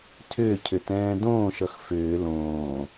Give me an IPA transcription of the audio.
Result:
tʰʏːcʰʏtɛ̃ː dõːʃʌx fʏː lõː

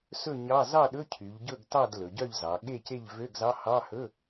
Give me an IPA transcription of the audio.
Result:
sɵ˥˨ɲɑ˧˥˧ zɑ˥˨ɗɵ˧˥˧cʰy˩˧ʎ ɟɵ˥˨ɡtɑ˥˨d lɵ˩˧ɟœ˥˨ʎzɑ˩˧ ɠe˥˨ce˥˨ʎ vø˧˥˧ɡzɑ˧˥˧hɑ˧˥˧hɵ˧˥˧

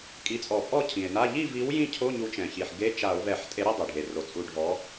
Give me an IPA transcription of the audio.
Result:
kʼi˨˥t͡sʼɔ˧˩˧ pʼɔ˥˨cʰĩ˩e̯na˧˥˧ ʎi˥˨vi˨˥w jĩ˥˨cʰo˧˥˧ ɲu˨˥t͡ʃɛ̃˩çi˩ħ ɡe˧˥˧t͡ʃa˧˩˧o̯vɛ˧˩˧ħtʼe˨˥ ɾi˥˨dˤɛ˩ɖʱe˩ ro˩t͡sʼu˧˩˧ɖʱɔ˨˥

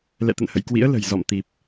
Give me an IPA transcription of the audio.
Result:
lɛ̰˧˨t̪ə̰˧˨nhə̰˧˨jkwḭ˧˥ə̯ lə̤˨˩jzɔ̰˧˨mt̪i˨˩p̚

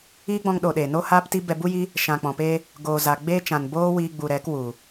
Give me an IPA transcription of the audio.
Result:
iː˦ɡ͡bɔ̃˧ŋɗo˨ ɗeː˨noː˦haː˦pti˦ bɛ˧bu˦ji˦ | ʃã˨k͡pɔ̃˨peː˧ | ɡoː˨za˨ ɡ͡beː˦t͡ʃã˨n boː˦wiː˧ ɡ͡bu˨ɾɛ˨˦k wu˨

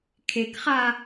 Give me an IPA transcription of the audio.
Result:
kʰekχa

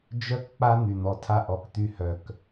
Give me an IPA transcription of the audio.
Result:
d͡ʒœ˦k k͡pa˦ n̪y˨n̪ɔ˨tʰa˦ ʔɔ˨kt̪y˦ hœ˦˨k

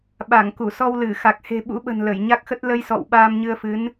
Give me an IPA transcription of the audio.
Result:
ɓa˧˩ŋku˧˩sɔ˧wlɨ˧˩ xa˨˩k̚he̤˨˩ɓṵ˧˥ɓə̤˨˩n lə˧˩jɲa˦˥k̚xə˦˥t̚ lə˧jsɔ̰˧˨w ɓaː˧mɲɨ˧ə̯fɨ˨˦n

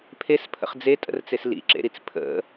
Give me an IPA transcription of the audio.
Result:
pʰespʰə̰χ d͡zetʼə̰rt͡ses lḭǁḛɾit͡s pʰə̰

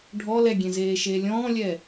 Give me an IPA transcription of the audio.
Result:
ɖʱɔ lɛɡʲẽ zeːʃeːlʲɔ̃ːlʲɛː

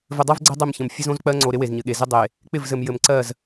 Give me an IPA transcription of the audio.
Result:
vɘ˨dˤɜ˦vɡ͡ǀə˦ dˤɪ˦˨mçə̃˨m fʲɘ˦zõ˦z k͡pɜ˦ŋ͡ǀo˨ ɾɪ˦we˨zɲɘ˨ɠe˨ zɪ˦dˤe˨ | k͡pɪ˦˨vzɘ˨m jɘ˨mǀɜ˦˨z

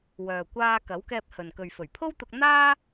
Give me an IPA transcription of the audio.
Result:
wœː˨ kʷaː˧ kɐ˨˥wkɛː˧p̚hɵ˨n kɵ˨ɥfɵ˨˩ɥpʰo˥wt̪ʊ˧k̚ n̪aː˥

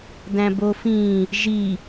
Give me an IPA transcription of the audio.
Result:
dæ̃bofĩ | ʒi

